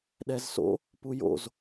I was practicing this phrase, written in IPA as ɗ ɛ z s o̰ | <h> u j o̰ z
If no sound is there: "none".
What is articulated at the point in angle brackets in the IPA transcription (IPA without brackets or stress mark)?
p